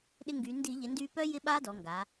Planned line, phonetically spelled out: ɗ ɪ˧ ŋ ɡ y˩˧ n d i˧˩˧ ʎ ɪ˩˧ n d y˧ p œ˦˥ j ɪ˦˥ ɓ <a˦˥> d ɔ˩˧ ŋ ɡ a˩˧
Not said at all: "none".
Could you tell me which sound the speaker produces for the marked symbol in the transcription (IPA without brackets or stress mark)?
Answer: a˦˥